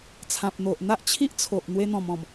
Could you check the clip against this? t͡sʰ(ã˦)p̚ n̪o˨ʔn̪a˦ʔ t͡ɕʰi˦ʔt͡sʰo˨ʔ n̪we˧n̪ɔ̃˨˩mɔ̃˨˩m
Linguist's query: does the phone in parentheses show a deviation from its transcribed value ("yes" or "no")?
yes